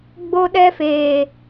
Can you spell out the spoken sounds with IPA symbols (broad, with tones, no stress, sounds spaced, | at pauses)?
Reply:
ɡ͡b o˦ ɗ ɛ˦ f eː˨